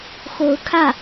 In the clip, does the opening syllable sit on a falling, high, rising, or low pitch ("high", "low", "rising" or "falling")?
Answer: rising